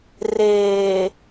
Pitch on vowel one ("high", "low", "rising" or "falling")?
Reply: low